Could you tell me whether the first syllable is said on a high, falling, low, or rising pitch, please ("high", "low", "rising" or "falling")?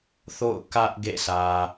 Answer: falling